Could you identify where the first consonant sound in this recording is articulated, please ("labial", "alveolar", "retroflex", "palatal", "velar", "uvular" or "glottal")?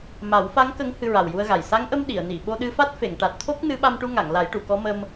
labial